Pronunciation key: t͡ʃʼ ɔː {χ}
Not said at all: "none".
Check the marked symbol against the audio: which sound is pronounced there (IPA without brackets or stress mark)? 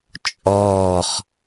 χ